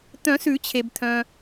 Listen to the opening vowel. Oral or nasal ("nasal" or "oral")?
nasal